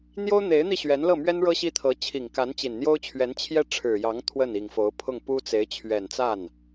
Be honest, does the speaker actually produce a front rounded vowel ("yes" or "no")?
no